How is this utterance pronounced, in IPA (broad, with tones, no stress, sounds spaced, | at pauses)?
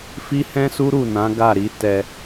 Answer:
f i˦ h ɛ̃˦ s u˦ ɾ u˦˨ n ã˨˦ ɡ a˦˨ ɾ i˨˦ t ɛ˧